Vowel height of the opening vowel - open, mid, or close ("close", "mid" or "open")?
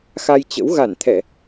open